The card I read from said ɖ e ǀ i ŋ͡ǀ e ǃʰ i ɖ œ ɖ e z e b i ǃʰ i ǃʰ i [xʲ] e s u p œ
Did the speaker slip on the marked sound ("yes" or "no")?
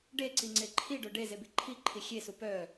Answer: no